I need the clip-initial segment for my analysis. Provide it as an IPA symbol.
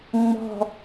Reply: ŋ͡m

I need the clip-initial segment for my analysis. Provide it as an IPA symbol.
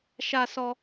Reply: ʃ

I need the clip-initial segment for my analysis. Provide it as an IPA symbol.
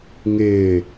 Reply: ŋ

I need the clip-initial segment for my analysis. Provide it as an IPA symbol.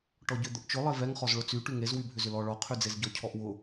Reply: ʈ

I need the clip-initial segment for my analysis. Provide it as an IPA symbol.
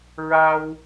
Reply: ɹ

